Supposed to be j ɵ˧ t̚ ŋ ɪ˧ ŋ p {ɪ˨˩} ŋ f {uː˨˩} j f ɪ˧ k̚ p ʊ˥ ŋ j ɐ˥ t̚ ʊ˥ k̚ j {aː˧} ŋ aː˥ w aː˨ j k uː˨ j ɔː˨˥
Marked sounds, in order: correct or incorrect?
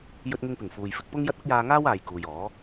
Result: correct, incorrect: uː˨, correct

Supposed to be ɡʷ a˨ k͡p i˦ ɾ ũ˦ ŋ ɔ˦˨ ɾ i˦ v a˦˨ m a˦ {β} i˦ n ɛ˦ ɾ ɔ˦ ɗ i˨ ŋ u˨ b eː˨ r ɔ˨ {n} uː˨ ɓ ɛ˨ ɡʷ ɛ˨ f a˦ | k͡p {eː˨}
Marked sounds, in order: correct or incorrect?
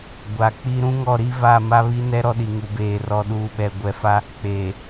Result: correct, incorrect: ɗ, correct

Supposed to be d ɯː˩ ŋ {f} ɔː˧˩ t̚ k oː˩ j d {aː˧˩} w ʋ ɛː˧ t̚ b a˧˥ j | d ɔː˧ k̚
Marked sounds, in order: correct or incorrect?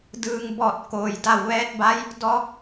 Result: incorrect: b, incorrect: a˧˩

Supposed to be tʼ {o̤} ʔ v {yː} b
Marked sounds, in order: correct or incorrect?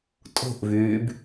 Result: correct, correct

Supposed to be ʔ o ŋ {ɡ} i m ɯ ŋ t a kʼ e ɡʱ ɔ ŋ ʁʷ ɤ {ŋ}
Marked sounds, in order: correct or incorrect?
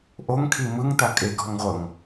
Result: incorrect: kʰ, correct

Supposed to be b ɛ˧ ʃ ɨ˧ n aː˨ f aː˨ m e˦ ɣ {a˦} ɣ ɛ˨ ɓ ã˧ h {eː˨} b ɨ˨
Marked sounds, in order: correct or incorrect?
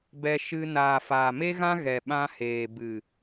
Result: incorrect: ã˦, correct

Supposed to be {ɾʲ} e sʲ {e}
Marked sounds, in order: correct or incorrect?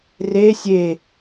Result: incorrect: r, correct

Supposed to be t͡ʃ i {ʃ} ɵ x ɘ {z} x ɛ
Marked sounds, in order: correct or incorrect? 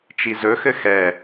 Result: incorrect: z, incorrect: none

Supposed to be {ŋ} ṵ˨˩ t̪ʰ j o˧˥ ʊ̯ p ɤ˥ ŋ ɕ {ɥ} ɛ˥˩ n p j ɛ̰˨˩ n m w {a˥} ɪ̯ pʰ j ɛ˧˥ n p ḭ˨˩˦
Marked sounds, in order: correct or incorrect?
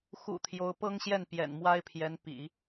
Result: incorrect: x, incorrect: j, correct

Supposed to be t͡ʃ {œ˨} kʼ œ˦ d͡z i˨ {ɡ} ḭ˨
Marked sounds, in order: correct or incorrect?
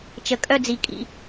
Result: incorrect: ə˨, incorrect: kʼ

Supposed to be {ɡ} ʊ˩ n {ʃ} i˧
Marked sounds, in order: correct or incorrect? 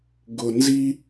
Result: correct, incorrect: z

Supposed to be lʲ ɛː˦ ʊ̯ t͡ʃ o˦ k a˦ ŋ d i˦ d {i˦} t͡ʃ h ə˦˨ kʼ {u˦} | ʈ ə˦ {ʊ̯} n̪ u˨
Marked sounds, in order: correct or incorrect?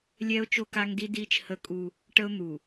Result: incorrect: iː˦, correct, correct

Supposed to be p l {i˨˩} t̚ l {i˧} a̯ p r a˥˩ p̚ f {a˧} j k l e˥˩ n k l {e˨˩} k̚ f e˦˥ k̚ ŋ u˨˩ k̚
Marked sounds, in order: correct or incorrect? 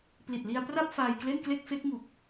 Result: correct, correct, incorrect: aː˧, incorrect: e˥˩

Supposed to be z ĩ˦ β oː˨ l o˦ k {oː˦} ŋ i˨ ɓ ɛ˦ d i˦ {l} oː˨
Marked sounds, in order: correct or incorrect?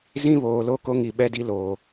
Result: incorrect: o˦, correct

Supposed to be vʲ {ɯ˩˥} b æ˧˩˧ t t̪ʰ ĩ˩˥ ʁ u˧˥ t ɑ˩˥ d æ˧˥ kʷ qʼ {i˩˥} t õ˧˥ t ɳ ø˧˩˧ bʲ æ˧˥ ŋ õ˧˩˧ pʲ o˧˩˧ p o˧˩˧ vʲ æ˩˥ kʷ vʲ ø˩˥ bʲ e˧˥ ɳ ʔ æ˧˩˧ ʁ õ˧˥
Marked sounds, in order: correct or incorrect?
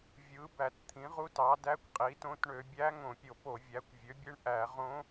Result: correct, correct

